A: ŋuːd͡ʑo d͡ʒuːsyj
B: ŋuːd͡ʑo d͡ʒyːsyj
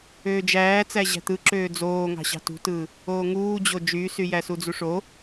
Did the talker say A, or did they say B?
B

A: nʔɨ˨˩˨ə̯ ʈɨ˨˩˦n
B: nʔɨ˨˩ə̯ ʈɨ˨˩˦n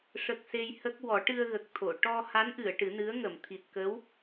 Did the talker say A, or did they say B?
A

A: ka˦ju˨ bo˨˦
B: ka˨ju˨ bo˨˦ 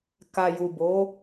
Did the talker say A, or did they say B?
B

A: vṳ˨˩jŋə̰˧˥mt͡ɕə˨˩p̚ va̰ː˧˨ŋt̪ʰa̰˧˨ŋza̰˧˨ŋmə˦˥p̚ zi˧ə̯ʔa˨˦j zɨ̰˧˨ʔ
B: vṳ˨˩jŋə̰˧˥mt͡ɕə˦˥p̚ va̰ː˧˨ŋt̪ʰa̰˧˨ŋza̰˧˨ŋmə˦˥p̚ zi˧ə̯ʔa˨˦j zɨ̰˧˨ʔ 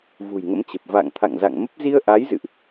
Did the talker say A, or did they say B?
A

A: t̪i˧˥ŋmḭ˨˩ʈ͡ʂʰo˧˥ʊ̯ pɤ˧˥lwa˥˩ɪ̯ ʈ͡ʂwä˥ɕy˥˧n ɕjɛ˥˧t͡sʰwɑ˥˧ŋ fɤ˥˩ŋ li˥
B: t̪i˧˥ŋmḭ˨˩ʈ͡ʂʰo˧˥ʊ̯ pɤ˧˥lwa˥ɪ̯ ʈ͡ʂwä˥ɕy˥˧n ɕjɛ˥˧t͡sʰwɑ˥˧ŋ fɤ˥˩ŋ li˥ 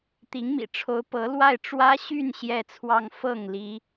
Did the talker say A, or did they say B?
A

